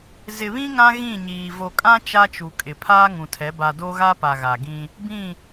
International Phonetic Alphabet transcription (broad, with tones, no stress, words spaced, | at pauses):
zɪ˨βĩ˦ ŋã˦ɣĩ˦˨ɲiː˨ vo˨kʼã˦ t͡ʃa˦t͡ʃu˨kʼɪ˨ pʰaː˦ŋũ˨tʰɛ˨˦ ba˨do˦ ɣa˦pa˨ ɣa˨ɡĩ˦ | bĩ˦˨